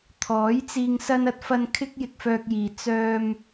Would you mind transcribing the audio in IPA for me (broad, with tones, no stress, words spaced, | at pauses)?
t̪ʰɔː˨˥jt͡siː˧ŋ sɐ˥n ɐ˧t̚fɐ˧n kʰɪ˥k̚jɪ˧k̚fœː˧k̚jiː˨ t͡sœː˧m